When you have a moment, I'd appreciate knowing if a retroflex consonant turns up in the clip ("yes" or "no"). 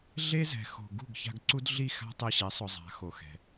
no